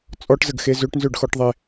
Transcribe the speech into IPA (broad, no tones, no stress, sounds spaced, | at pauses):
t͡sʼ ɔ ʈ z ə ɡ x e z ø ʈ n z ø ɖ x ɔ ʈ ðˤ e